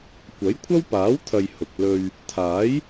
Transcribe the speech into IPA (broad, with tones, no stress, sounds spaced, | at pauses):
kʷ ɐ˨˥ j kʷʰ ɐ˥ w p aː˨˥ w t̪ʰ ɐ˨ j h ʊ˨ k̚ l ɵ˧ ɥ | t̪ʰ aː˨˥ j